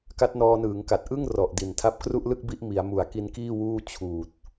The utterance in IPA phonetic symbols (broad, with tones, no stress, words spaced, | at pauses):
ka˦˥t̚nɔː˧nɯː˩˦ŋka˨˩t̚ ʔɯ˥˩ŋ rɔ˨˩ʔ di˨˩ntʰa˥˩p̚ kru˥˩ʔlɯ˥˩k̚ bi˥˩ʔ mi˩˦a̯ mu˨˩a̯ki˧nkiː˥˩ wuː˥˩t͡ɕʰuː˨˩t̚